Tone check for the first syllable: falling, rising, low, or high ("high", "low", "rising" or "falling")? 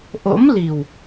rising